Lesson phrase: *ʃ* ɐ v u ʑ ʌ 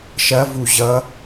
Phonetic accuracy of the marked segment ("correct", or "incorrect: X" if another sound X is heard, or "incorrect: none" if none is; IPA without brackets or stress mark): correct